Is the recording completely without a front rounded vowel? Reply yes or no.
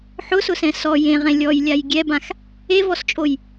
yes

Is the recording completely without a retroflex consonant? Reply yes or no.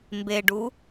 no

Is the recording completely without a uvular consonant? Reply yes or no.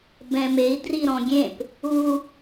yes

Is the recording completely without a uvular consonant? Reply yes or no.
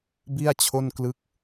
yes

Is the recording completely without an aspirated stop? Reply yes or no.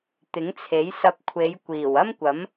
no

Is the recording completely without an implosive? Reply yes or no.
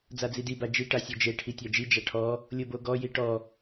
yes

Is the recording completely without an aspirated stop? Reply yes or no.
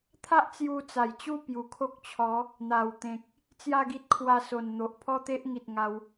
no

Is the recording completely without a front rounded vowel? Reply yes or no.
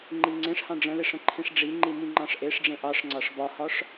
yes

